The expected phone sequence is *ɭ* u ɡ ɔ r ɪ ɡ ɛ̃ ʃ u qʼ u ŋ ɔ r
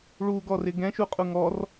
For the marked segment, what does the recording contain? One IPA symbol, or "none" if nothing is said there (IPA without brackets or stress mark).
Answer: ɭ